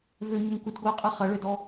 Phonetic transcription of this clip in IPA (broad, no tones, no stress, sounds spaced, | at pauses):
v ø ɲ ʏ ŋ kʷ ɪ d ɡʷ ɪ ə̯ qʼ ɛ χ ɐ ɭ ø d ɔ